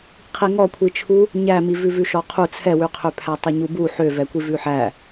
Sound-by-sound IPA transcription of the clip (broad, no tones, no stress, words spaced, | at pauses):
qʰiŋɔkʷʰit͡ʃʰu | ɲæmi vʉvʉʃɔqʰu t͡sʰɛwʉqʰøpʰæ tˤæɲubu ħøvɛkʷi vʉħæ